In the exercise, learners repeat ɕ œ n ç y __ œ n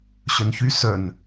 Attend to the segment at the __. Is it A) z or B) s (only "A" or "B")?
B